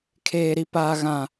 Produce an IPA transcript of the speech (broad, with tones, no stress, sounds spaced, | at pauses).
kʰ eː˦ ɾ i˦ p aː˦ ɣ ã˦